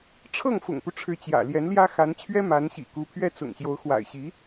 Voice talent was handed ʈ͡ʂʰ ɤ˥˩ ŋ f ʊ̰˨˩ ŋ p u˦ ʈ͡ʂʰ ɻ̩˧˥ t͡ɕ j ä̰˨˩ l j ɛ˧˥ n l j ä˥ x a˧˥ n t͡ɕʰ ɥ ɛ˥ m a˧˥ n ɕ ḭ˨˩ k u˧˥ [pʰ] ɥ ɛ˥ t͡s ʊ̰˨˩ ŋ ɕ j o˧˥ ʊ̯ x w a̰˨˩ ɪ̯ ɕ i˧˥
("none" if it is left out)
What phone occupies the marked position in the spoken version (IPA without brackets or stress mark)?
pʰ